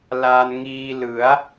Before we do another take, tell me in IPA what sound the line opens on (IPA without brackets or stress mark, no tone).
l